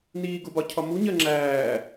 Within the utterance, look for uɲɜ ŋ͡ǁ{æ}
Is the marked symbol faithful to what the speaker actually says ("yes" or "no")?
no